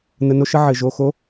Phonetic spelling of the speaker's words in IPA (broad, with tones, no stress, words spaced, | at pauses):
nə˩˧˩no˧ʃə˧ ʕɘ˩ ʒo˩˧˩xo˧˥